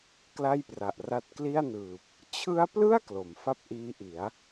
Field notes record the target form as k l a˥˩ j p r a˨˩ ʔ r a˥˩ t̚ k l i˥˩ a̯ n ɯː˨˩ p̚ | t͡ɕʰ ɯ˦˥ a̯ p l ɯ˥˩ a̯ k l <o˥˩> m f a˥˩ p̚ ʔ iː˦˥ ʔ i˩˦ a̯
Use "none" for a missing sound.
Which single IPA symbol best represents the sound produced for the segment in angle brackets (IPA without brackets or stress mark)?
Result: o˩˦